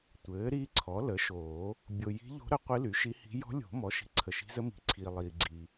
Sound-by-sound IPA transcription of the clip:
tʷ ɘː˩˥ ɾ iː˧˥ ǀʰ ɔ˩˥ l ə˩˥ ʃ oː˨˩˦ | bʲ o˨ j i̤˧˥ ʎ o̤˧˥ ɾ ə˩˥ qʷ i˧˥ l y˩˥ ʃ i˧˥ h i̤˧˥ j ɔ̤˧˥ lʲ o̤˨˩˦ m ɔ˩˥ ʃ i̤˨ ǀʰ ə˨ ʃ i̤˧˥ z ə˧˥ m i̤˨˩˦ ǀʰ iː˨ lˠ iː˨ ɡ͡ǀ iː˨

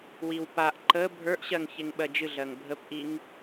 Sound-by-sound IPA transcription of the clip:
w i w p a ʔ ǃ ə bʱ ə˞ ʔ ɕ ɜ ŋ ç e ŋ ɓ ɜ d͡ʒ ɨ ɮ ɜ ŋ bʱ ə p ʔ i ŋ

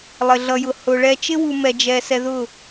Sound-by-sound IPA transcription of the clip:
lˠ ɪ˨ ɮ ʌ˨ j ʊ˨ h ʊ˨ ɭ ɛ˨ t͡ʃ ɪ˦ w u˨ m ɛ˨ d͡ʒ ɛ˨ s ɛ˨ ð ʊ˦˨

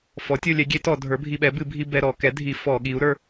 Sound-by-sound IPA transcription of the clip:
f ɔ˩˥ tʲ o˧ lʲ ɛ˩˥ ɡʲ e˩˥ t ɔ˧˩˧ dʱ ə˞˩˥ bʱ i˧ ɓ ɛ˩˥ b ɨ˧˩˧ bʱ i˧ b ɛ˧ ɾ ɔ˧˩˧ k ɛ˩˥ dʱ i˧˩˧ f ɔ˧˩˧ ɠ i˩˥ u̯ ɾ ə˞˧

